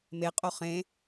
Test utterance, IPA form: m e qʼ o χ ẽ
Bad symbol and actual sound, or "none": none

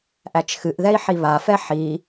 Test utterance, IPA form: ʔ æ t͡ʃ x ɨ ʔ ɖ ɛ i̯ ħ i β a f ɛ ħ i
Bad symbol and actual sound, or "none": ɖ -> ð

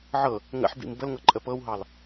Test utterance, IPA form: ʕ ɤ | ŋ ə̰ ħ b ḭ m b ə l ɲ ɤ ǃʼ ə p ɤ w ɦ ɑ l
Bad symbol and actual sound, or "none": ɲ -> ŋ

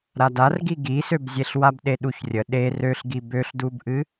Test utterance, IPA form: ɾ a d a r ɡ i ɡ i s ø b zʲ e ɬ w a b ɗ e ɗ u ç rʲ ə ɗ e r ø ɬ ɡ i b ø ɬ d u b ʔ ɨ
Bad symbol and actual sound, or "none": none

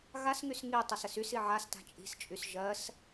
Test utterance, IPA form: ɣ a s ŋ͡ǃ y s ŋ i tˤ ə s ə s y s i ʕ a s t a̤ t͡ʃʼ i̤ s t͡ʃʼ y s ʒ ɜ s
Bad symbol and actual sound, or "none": ŋ͡ǃ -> ŋ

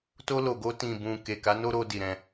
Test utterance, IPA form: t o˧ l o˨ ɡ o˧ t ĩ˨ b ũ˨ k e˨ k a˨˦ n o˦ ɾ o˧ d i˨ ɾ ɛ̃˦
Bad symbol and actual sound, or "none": ɛ̃˦ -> ɛ̃˧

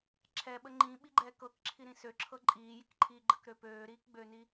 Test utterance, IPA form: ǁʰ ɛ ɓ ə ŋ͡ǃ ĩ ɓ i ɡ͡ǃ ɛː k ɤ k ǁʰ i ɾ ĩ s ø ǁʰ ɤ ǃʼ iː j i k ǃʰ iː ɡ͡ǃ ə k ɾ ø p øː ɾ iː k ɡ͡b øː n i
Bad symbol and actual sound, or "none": none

